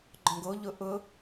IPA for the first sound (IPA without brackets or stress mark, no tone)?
ɡ͡ǃ